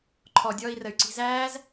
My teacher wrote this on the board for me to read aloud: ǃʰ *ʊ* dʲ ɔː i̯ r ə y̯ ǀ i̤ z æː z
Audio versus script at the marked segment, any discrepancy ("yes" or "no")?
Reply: yes